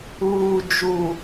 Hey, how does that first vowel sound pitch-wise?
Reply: low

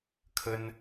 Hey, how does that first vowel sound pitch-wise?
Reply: high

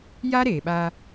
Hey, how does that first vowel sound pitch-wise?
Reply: high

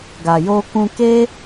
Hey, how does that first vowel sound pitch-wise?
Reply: low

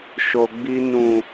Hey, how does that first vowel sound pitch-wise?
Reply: low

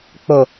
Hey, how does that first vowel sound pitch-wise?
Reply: low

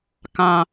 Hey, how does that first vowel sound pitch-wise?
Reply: low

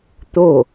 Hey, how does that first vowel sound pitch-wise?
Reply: falling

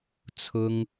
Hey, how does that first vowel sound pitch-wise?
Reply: high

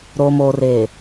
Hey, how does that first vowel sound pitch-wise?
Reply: low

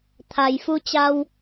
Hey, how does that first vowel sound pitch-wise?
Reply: low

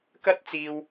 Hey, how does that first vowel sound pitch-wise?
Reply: high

